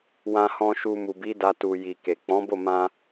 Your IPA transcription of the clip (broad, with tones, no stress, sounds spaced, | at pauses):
w ã˨ h ɔ̃˨ ʃ u˨ m u˨ b i˨˦ d a˧ t u˨ j i˨ k e˨ k͡p ɔ̃˨˦ b o˦˨ m ã˧